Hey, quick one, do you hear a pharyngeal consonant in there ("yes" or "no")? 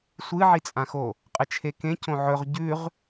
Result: yes